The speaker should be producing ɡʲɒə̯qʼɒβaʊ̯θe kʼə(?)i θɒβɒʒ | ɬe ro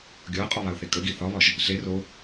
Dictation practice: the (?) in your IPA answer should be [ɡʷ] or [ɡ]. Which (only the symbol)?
ɡ